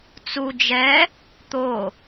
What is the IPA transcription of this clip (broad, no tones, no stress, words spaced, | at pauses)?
t͡su d͡ʒɛ | t̪o